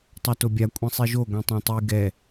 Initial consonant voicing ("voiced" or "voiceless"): voiceless